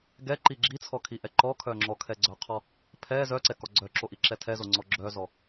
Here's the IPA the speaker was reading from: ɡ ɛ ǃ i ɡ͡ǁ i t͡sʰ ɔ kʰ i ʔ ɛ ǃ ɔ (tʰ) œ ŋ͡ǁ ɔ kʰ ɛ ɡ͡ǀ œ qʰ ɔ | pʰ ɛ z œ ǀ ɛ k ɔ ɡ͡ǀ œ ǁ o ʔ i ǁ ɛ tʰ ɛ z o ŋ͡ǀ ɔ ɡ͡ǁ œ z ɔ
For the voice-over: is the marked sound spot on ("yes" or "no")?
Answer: no